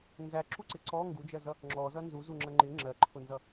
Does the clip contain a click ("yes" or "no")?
yes